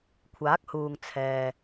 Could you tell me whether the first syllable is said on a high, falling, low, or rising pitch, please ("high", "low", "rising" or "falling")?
rising